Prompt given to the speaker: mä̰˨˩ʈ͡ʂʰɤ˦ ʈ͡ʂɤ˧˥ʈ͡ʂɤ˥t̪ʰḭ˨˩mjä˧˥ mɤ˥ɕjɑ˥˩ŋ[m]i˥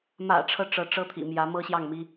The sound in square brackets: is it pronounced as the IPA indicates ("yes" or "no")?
yes